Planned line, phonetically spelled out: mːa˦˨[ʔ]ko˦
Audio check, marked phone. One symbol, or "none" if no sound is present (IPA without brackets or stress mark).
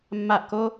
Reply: ʔ